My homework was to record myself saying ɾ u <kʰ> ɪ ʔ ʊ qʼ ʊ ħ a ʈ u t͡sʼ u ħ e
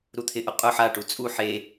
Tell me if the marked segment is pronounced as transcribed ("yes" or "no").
no